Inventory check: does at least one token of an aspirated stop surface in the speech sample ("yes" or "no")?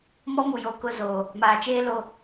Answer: no